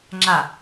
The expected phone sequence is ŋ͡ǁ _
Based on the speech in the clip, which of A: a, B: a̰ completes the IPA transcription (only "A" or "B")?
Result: A